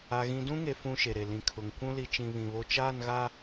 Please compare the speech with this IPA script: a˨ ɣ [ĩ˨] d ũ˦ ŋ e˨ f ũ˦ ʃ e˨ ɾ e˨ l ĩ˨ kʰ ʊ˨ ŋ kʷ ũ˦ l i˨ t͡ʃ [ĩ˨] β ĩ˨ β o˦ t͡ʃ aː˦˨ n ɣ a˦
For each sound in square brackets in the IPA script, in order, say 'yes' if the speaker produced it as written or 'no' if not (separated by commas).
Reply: yes, yes